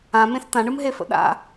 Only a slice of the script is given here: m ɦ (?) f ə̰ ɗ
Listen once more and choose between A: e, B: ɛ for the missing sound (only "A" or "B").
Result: A